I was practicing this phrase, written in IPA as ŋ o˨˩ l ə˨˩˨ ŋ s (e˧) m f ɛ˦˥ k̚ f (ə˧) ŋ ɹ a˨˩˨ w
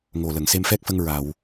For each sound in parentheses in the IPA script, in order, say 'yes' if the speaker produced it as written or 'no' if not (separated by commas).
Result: yes, yes